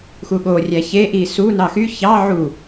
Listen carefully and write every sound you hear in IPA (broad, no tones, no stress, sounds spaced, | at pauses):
x u ɠ o rʲ æ ç e ʔ i s u n ɑ x y ç ɑ ʕ u